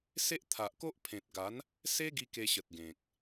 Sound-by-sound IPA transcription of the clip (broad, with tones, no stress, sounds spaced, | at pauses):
s e˦ ʔ t̪ʰ a˨ ʔ k o˦ ʔ pʰ ẽ˨ t̚ ɡ a˨˦ n | s e˦ ɡ i˧ k e˧ ɕ ə˨ t̚ ɡ ẽ˨ k̚